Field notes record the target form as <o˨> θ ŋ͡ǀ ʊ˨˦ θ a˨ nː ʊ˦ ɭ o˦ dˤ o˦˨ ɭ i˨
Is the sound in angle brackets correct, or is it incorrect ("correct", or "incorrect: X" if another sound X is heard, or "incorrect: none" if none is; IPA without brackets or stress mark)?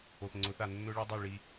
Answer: correct